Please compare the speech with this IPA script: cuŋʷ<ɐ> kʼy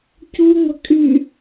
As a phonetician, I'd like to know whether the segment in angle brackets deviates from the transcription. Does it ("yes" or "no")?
no